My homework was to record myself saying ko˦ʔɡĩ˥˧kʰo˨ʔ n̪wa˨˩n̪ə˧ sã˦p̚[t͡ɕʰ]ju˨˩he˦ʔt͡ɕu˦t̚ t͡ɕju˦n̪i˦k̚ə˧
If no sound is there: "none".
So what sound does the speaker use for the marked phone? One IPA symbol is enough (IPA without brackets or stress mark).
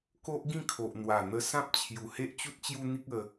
t͡ɕʰ